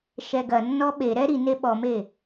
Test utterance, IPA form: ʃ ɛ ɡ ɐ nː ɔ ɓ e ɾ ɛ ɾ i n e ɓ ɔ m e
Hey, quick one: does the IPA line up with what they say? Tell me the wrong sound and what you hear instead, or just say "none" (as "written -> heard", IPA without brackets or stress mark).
none